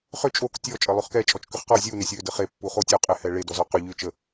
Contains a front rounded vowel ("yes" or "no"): yes